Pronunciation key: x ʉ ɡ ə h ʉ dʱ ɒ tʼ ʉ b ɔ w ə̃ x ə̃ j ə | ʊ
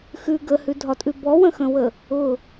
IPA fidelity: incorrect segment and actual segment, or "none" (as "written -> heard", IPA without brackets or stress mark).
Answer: j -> w